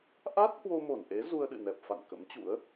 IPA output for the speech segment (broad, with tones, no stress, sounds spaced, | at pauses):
ʔ a˦˥ t̚ h w o˧ m o˧˩ n ʔ e˨˦ z u˧ ə̯ ɗ ɨ̰˧˨ n ɛ˨˩ p̚ f a̰˧˨ n k ə̰˧˥ m t͡ɕ ṵ˧˥ ə̯